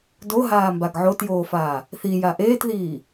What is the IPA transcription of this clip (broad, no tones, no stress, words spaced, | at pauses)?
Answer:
doɦaːmbaɡ ʕotjoːfaː | θija ʔeːtðiː